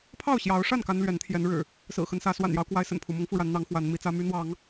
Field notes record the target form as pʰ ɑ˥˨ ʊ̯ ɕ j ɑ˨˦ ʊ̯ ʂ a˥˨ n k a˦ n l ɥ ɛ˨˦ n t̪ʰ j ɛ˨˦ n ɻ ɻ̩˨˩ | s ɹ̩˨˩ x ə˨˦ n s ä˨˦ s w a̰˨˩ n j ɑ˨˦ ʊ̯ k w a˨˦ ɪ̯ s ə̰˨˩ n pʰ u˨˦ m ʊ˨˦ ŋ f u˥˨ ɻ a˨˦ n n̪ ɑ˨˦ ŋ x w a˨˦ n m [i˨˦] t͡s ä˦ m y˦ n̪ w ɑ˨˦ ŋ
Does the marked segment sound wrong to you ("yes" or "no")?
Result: no